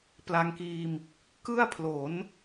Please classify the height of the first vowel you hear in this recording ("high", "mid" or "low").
low